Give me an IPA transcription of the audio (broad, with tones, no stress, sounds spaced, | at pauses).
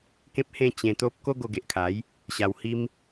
k ẽ˦ p̚ h ẽ˥˧ t͡ɕ ẽ˧ t̪ o˦ p̚ k o˦ ɡ o˧ ɡ e˨ ʔ kʰ a˨˦ j | ɕ a˧ w h i˦ m